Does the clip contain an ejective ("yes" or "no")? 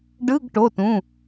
no